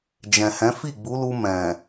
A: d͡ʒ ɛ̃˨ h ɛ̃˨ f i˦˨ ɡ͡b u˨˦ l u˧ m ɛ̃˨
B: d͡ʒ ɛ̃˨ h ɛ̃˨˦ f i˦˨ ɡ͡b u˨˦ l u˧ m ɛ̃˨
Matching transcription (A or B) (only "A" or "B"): B